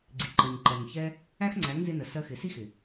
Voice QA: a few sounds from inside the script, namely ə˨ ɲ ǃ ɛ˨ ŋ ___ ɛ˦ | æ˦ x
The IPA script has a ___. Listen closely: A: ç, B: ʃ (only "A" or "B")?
A